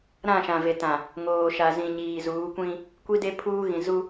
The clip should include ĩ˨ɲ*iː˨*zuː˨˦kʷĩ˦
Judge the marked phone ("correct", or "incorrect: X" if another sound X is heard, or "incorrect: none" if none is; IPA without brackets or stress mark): correct